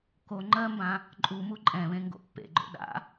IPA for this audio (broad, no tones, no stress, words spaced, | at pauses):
ko ŋ͡ǃɜmbã | ǃʼu muǃʼɛ̃βẽ ŋɡo̰pːḛ ɡ͡ǃo̰ɗa̰